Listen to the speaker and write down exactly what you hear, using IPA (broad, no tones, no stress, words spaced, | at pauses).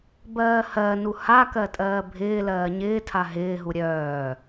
bɜːhɜnu hakɜ tʼɜːbʱɪːlɜː ɲɪːtʰa ɦɪːɦu ɾʲœː